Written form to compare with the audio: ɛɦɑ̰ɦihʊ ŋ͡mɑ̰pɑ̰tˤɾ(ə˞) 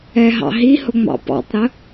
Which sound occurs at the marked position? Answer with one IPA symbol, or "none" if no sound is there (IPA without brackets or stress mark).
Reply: ə